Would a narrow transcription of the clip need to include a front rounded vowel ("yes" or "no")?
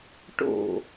no